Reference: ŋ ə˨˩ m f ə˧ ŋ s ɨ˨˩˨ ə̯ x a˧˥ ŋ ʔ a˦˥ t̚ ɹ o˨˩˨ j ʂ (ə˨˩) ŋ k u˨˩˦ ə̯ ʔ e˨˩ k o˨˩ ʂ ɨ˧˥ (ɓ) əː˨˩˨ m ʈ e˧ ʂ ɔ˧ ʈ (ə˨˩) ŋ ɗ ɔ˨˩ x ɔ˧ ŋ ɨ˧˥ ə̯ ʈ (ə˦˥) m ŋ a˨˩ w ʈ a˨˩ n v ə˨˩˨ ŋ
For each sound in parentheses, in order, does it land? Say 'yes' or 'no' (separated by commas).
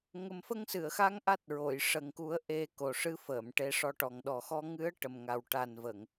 yes, no, no, no